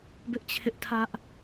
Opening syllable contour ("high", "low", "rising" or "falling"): high